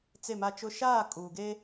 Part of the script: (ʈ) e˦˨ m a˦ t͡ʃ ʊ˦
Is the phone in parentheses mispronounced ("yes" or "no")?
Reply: yes